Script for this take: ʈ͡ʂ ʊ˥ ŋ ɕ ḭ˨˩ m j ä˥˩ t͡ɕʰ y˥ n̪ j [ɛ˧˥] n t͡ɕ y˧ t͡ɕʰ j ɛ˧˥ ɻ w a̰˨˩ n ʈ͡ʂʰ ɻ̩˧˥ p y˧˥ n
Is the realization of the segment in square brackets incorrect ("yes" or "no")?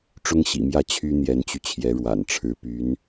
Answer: no